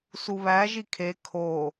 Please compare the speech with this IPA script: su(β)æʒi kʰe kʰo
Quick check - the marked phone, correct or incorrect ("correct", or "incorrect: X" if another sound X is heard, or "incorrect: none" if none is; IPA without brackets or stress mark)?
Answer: correct